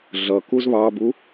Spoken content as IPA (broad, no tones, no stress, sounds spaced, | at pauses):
ɮ ʌ k u z β ɑ b u